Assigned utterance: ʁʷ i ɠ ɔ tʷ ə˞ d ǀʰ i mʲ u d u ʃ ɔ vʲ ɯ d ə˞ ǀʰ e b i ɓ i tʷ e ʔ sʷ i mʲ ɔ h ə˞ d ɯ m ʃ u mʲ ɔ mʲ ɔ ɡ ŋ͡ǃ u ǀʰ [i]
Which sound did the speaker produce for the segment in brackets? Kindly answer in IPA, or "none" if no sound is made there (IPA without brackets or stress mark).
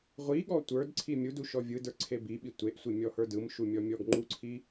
i